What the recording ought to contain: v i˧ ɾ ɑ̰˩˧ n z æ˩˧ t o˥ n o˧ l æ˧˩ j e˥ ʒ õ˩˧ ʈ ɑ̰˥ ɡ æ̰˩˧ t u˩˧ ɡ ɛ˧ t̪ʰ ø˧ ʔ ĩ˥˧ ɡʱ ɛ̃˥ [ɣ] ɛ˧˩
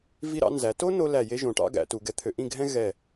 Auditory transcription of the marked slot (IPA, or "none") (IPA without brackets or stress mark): ɣ